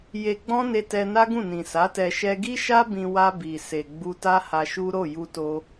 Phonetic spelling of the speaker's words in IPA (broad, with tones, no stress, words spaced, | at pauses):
je˧ɡ͡bɔ̃˦ne˧ tɛ˧na˦ɡũ˦˨nĩ˨ sa˨˦tɛ˧ ʃɛ˧ ɡi˦ʃa˦ bĩ˧ wa˧ bi˨ se˨ɡ͡bu˧ta˦ ha˧ʃu˦ ɾo˦˨ju˧to˧